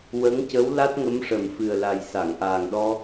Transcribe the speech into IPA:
w ə˧˥ ŋ c ə˧˥ w l a˦˥ t̚ ŋ ə˧˥ m ʂ ə˨˩ m f ɨ˨˩ ə̯ l a˨˩ j s a˨˩˨ ŋ ʔ aː˨˩ ŋ ɗ ɔ˧

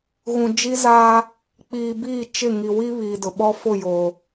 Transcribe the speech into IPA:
ɣ ũ˨ d͡ʒ i˦ z aː˦ | k͡p iː˨ b iː˦˨ t͡ʃ ɪ˦˨ ŋ i˨ w i˦ β iː˨ d ʊ˨ ɓ ɔ˦ f ʊ˦˨ j oː˨

